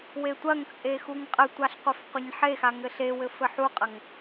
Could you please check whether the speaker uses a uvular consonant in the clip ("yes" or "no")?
yes